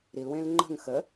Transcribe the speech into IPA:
ɾ i l w ẽ l ŋ͡ǃ ə̤ ŋ x ə

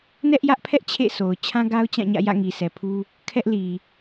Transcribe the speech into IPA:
n ɛ˦ ʔ j ä˦ ʔ pʰ ɛ˦ ʔ t͡ɕʰ ḛ˦˨ sʰ o˨ ʊ̯ t͡ɕʰ ã˦ ɡ a˦ ʊ̯ t͡ɕ ã˦˨ ɲ ä̰˦˨ j ä̰˦˨ ŋ i˨ s ɛ˨ pʰ u˦ | kʰ ɛ˦ ʔ l i˨

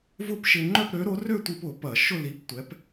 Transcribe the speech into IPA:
v ʊ˥˨ p ʃ ɪ˧ ŋ͡ǃ œ˥˨ p ɾ ø˨˥ ɾ o˨˥ r ø˥˨ tʷ i˧ p ʊ˧˩˧ p ɐ˧˩˧ ʃ ʊ˥˨ l i˨˥ p tʷ ɛ˨˥ p

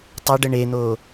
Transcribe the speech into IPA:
tˤ ɐ ɖ ə ɳ e n̪ o

